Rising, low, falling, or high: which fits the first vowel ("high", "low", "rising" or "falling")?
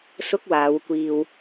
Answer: high